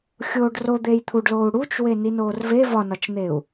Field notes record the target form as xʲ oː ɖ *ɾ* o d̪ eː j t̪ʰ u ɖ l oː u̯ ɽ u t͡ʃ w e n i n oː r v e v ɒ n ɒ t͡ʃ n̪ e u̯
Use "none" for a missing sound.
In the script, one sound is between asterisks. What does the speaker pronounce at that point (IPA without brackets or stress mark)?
r